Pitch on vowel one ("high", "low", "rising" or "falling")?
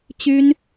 high